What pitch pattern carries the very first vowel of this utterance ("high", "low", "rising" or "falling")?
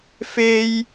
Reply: high